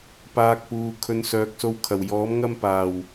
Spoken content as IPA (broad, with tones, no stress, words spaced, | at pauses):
paː˧k̚puː˨ kʰɵ˨nsœː˨k̚so˧w kʰɐ˨˩wjɔː˨˥m ŋɐ˥m paː˨˩w